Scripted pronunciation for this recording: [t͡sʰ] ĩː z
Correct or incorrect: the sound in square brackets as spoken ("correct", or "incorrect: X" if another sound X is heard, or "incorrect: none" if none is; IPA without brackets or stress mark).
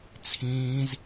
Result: correct